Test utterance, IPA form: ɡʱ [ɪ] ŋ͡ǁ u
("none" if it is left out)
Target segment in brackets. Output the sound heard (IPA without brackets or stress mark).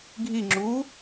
i